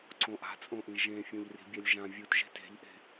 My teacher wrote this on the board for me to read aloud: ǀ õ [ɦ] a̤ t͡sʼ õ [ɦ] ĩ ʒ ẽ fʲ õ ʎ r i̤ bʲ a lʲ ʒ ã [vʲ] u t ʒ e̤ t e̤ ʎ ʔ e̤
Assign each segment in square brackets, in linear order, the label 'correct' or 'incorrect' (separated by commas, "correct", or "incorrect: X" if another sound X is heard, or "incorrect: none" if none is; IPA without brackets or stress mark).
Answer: incorrect: ʔ, incorrect: ʔ, correct